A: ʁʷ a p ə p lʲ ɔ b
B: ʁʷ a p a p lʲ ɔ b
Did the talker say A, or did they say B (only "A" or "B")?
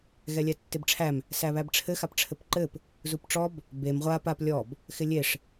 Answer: B